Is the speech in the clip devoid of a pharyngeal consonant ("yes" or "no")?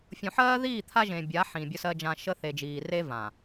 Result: no